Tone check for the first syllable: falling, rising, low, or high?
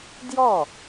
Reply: falling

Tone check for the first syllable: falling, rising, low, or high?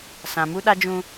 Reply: low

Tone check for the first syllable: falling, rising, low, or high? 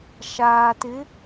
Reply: low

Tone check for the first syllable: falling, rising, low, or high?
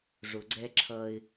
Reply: low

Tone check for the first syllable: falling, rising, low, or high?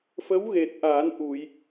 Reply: rising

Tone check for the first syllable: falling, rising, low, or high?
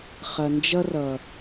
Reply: low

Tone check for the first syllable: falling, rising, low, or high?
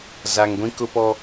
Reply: low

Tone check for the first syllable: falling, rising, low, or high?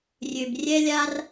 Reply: low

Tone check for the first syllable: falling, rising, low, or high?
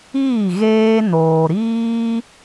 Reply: falling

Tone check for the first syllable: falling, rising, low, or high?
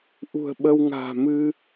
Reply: low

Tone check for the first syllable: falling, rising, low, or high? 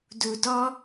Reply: low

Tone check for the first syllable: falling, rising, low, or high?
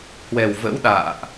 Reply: low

